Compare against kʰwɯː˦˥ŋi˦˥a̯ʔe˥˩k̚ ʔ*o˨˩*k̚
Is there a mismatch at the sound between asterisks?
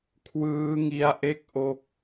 yes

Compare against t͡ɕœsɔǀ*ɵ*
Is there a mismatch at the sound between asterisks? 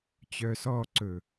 no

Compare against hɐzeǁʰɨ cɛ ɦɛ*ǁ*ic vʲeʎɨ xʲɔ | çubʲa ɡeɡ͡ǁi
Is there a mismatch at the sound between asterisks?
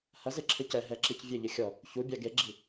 no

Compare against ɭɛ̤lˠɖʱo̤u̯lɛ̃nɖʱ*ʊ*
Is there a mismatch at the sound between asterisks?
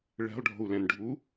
yes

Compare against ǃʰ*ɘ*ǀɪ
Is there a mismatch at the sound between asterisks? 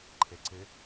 yes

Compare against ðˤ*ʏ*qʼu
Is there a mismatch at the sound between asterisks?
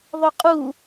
no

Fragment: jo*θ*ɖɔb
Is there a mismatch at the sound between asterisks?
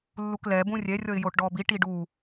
yes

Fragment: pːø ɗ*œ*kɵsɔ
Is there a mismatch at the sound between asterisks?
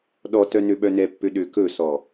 yes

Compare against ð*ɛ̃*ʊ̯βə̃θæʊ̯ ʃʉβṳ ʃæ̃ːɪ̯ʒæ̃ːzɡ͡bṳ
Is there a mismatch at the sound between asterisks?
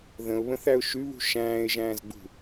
yes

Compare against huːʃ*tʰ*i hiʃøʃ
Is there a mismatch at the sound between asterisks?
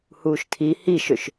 no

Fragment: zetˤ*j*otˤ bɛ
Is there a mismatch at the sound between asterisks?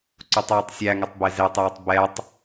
no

